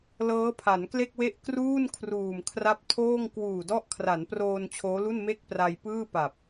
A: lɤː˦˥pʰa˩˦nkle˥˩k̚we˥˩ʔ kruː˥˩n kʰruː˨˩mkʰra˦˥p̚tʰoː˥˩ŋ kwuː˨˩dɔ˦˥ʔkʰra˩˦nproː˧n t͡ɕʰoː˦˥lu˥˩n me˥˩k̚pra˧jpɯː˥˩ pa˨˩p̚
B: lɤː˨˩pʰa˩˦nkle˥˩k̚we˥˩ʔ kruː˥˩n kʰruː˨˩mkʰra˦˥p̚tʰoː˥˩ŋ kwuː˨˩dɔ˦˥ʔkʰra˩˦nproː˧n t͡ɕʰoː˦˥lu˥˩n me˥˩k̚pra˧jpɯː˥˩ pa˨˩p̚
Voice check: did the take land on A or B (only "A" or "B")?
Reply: A